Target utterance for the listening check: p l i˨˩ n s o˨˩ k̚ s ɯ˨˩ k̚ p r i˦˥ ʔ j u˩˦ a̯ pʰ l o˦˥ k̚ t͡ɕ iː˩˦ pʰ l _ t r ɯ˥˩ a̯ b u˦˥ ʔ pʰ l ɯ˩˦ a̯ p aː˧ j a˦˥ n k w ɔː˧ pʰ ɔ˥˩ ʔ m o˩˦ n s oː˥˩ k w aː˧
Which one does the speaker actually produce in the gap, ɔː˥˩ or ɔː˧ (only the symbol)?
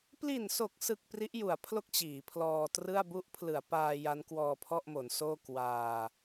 ɔː˧